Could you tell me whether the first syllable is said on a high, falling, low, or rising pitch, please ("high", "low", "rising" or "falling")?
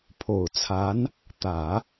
low